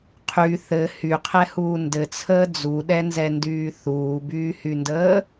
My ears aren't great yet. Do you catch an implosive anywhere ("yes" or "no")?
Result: yes